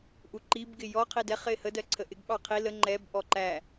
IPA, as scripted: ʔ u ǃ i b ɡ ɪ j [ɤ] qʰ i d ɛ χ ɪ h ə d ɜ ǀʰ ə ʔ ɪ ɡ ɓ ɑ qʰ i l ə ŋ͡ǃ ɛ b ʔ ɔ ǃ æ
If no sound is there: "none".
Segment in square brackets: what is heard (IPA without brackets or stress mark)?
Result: ɔ